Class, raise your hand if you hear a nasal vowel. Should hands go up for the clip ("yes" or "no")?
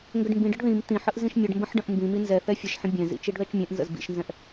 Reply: yes